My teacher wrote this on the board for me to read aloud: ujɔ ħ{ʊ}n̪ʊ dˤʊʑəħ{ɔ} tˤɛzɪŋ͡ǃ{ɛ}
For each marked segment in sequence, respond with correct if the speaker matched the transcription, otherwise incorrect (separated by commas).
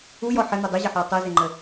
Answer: incorrect, correct, incorrect